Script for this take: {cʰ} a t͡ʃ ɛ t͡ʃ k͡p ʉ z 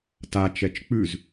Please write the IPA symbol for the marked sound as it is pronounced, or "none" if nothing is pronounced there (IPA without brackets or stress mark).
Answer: t